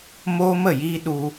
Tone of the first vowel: high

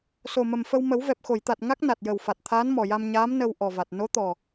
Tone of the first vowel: low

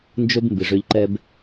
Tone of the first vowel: high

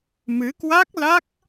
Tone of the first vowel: rising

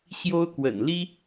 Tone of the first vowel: high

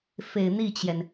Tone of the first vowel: low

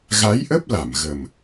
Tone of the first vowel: rising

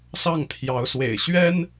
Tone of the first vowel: falling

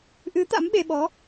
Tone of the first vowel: rising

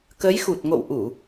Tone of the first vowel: rising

